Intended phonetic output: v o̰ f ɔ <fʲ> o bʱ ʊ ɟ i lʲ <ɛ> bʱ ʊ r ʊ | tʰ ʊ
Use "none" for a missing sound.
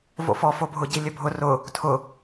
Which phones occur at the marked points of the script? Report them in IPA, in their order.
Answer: f, ɘ

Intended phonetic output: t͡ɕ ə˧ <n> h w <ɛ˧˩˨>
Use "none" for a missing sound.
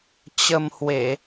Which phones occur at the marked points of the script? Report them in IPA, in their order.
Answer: m, e˧˩˨

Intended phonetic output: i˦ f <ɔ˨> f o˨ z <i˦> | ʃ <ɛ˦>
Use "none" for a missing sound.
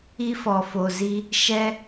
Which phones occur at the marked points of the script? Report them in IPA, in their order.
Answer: ɔ˨, i˦, ɛ˦

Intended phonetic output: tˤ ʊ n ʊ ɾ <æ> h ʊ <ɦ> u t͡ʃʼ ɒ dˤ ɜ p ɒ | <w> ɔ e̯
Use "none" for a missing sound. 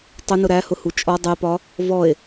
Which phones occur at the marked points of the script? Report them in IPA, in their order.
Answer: æ, h, v

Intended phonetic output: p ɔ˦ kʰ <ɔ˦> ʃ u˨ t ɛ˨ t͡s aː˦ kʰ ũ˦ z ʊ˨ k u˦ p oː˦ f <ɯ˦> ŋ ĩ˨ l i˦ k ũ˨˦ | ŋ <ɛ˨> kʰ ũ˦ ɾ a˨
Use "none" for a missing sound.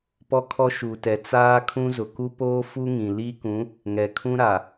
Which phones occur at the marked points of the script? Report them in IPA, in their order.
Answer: ɔ˦, u˦, ɛ˨

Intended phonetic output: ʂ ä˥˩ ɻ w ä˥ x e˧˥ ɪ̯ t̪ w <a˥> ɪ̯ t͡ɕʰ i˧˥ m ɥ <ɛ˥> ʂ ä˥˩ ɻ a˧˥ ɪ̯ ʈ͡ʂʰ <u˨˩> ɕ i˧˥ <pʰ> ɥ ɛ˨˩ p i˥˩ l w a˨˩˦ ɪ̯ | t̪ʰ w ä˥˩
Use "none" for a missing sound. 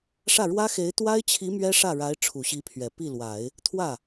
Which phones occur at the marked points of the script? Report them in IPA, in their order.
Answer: a˥, ɛ˥, u˨˩, pʰ

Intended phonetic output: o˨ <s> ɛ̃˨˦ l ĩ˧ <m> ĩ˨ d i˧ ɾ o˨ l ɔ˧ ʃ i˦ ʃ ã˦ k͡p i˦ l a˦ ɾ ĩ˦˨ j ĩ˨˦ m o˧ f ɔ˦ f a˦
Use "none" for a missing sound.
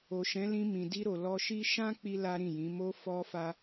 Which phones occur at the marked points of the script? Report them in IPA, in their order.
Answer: ʃ, m

